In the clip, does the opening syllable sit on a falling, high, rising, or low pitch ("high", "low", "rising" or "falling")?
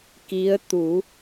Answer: rising